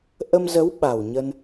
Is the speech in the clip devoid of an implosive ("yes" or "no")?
no